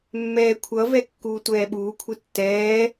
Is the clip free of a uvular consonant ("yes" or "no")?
yes